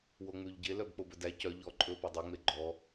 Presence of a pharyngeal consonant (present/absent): absent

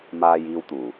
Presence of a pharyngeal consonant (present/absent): absent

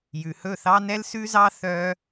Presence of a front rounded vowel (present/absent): present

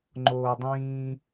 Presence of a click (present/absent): present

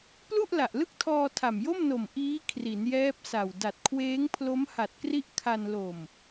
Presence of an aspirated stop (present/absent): present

